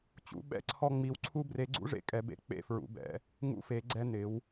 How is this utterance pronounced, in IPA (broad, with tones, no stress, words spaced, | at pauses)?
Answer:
t͡ɕṵ˨˦ ɓɛ̰˦ǀʰɔ˦ ŋ͡mi˨˦wǀʰu˦ bre˨˦ɡ͡ǀṵ˦ʐḛ˨˦ kʼɛ˨˦bḛ˨˦ k͡pḛ˦fɹṵ˨˦bɛ̰˨˦ | ŋṵ˦fe˨˦ɡ͡ǀɛ˦ nɪ˨˦w